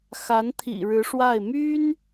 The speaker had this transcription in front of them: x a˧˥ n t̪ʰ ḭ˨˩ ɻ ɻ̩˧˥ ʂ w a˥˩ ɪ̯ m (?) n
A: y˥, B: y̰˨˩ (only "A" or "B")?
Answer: A